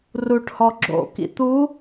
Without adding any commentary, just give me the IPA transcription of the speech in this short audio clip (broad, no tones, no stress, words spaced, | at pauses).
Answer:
ruʈhɔ ɡ͡ǁo̰kḭ t̪u